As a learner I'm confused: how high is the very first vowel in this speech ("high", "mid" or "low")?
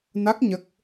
low